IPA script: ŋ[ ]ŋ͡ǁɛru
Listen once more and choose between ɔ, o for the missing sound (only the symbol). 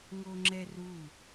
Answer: o